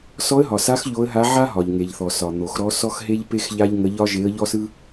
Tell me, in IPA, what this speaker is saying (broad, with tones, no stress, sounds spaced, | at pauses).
s ɔ˧˥ ə̯ ɦ ɒ˩ s a˧˥ x ʎ o˧˥ ə̯ ɦ a˧˥ ʕ a˥ ɦ ɒ˩ ʎ ŋ e˩ ʎ θ ɔ˩ s ɒ˩ n̪ o˩ x ɾ ɔ˧˥ s ɔ˥ x ɦ e˥ ʎ p e˥ x ʎ a˥ ʎ ŋ ə˧˥ ʎ ɒ˥ ʒ e˧˥ ə̯ ʎ ɔ˥ s ɯ˥